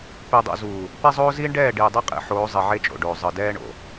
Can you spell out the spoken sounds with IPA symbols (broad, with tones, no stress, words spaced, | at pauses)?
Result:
pe˨dˤo̰˨ zuː˨ | pɛ˦zˤoː˦ ziː˦ɳɖɛː˦˨ ɖiː˨dˤi˦qʼḭ˨ħoː˨˦ zˤi˨ʕe˦t͡ʃʼo̰˨ɖoː˨ zˤɯ˨dɛː˦ɳo̰˨